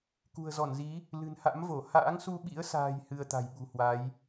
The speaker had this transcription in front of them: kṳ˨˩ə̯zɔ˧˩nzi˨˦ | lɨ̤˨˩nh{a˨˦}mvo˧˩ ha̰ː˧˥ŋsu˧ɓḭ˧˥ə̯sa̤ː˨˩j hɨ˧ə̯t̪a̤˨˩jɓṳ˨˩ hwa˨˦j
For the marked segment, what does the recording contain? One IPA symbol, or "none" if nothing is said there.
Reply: a̰˧˥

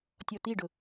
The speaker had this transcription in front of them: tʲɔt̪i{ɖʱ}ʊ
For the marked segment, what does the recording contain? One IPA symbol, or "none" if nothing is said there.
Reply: ɖ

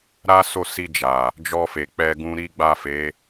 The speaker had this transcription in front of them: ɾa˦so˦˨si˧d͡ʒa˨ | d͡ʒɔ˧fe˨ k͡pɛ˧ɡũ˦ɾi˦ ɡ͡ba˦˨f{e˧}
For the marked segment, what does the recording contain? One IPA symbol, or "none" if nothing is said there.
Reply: e˨˦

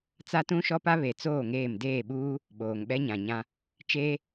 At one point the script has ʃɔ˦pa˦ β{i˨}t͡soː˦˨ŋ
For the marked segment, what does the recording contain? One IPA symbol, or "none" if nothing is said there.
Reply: e˨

